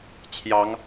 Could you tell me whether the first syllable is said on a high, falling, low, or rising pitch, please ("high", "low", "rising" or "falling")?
rising